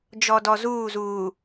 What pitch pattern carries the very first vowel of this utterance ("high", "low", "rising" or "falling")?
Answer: low